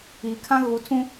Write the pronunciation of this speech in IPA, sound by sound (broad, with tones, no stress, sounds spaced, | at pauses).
iː˨ kʰ ã˦ ɣ u˨˦ tʰ ũ˦